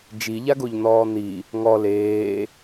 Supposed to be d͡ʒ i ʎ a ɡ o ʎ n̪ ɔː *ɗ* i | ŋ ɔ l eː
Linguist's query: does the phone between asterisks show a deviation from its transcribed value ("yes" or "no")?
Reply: yes